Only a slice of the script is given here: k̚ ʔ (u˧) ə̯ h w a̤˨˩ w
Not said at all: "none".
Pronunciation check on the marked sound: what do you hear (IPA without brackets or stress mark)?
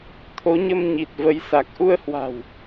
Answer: u˧